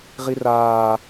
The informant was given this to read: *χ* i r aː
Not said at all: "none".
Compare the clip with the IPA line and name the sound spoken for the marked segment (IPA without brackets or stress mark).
ʁ